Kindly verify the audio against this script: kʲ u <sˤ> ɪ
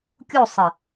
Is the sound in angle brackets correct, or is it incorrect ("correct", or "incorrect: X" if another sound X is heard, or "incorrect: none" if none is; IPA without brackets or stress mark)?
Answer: correct